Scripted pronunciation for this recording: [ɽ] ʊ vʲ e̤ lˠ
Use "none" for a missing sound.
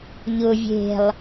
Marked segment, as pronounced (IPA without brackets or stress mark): ʎ